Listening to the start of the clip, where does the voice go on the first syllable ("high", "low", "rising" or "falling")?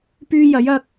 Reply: high